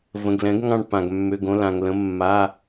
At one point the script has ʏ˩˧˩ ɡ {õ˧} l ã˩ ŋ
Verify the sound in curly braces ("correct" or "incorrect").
correct